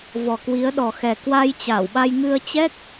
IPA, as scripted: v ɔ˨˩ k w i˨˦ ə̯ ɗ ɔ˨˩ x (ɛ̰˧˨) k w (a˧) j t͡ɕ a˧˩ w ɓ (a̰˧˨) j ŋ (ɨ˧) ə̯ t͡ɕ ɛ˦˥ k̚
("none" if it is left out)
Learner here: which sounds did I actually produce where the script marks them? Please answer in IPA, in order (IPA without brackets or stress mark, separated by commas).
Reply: ɛ˨˩, a˧, a˧, ɨ˧